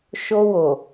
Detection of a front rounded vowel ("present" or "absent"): absent